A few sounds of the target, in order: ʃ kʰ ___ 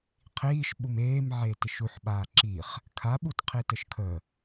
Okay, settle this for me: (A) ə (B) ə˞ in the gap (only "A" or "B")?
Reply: A